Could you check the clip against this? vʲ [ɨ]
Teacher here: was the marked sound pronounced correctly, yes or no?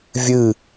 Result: yes